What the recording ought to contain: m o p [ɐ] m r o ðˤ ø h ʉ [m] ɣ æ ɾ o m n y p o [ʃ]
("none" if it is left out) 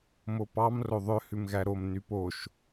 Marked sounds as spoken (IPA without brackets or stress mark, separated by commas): ɑ, m, ʃ